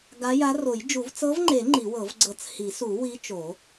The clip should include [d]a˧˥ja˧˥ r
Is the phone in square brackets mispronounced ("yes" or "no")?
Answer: yes